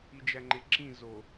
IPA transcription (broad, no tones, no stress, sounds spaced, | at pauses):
i d͡ʒ æ ŋ͡ǃ e ǁ ĩ z o